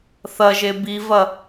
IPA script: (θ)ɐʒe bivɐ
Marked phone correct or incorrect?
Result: correct